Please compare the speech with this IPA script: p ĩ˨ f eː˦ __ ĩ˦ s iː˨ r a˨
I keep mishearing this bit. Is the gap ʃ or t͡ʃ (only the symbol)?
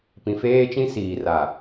t͡ʃ